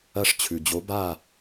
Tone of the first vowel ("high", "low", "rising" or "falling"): falling